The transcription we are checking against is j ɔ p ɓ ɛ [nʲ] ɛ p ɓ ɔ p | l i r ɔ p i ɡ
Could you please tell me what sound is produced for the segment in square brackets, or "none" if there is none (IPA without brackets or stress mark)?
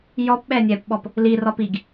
nʲ